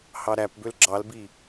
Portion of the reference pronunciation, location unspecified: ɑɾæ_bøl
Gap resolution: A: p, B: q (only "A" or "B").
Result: A